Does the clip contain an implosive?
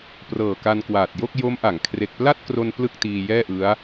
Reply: no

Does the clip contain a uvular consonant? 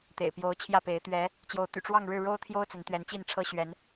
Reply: no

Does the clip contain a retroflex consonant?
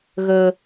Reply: no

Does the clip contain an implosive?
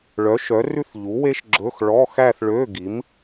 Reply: no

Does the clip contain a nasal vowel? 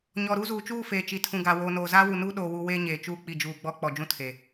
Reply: yes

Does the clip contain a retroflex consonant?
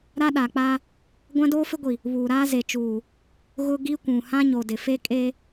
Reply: no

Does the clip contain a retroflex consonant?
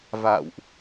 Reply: no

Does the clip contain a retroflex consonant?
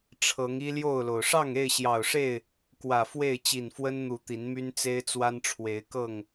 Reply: yes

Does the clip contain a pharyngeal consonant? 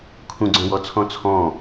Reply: no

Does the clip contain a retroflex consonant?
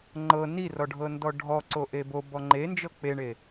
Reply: yes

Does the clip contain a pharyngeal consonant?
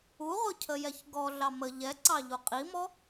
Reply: no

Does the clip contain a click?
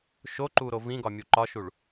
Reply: yes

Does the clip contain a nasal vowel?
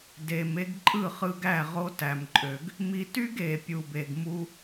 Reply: no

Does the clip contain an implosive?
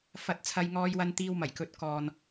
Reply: no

